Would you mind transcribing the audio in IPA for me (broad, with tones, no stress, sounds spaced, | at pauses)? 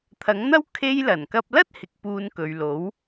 t̪ʰ ɐ˨˥ ŋ n̪ ɐ˥ w kʰ e˧ j l ɐ˨˩ n k ɐ˧ p̚ l ɐ˥ t̚ h ɪ˨˥ k̚ p uː˧ n k ɵ˨ ɥ l o˨˥ w